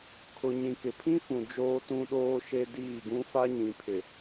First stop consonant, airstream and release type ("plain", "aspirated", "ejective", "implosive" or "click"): aspirated